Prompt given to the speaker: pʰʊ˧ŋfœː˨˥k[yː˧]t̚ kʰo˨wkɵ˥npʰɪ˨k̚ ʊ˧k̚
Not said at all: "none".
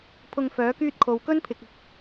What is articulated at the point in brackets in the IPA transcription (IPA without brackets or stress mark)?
yː˥